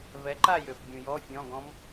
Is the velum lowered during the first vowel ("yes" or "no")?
no